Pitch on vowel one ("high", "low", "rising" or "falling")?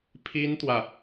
high